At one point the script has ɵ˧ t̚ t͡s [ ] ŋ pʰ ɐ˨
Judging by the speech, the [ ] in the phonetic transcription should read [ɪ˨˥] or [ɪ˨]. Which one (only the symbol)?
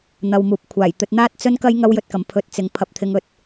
ɪ˨